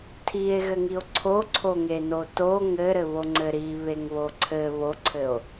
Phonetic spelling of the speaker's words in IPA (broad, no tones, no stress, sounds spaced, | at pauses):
tʰ i e̯ ɣ ɘ ŋ i o̯ ǀʰ o ǀʰ o ŋ e n o t o ŋ ɘ ɾ ɘ β o ŋ͡ǀ ɘ ɾ i β e ŋ β o ǀʰ ɘ β o ǀʰ ɘ o̯